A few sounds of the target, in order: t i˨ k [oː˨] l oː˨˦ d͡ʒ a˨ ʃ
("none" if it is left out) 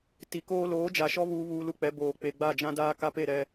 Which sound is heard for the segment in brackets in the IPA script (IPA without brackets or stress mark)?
oː˦